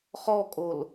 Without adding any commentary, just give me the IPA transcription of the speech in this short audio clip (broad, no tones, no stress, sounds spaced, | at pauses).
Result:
χ ɔ kʼ o l